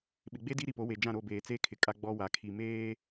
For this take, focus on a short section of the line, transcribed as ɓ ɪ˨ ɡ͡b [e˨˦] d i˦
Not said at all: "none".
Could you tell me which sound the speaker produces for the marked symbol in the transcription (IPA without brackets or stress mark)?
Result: e˦